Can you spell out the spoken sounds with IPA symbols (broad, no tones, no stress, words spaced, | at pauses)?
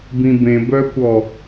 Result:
bĩbẽbœːkʷɔ